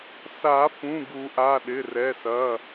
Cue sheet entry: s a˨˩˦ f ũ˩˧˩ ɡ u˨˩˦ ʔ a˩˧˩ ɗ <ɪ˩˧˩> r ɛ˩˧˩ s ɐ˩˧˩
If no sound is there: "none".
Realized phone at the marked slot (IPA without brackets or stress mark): ɪ˩˧˩